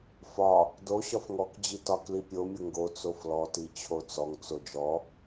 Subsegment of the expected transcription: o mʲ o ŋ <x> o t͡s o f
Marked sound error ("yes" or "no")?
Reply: yes